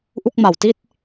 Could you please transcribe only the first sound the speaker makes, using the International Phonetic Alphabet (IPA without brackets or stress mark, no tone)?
ʔ